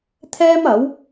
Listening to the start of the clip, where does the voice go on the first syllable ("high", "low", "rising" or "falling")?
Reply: high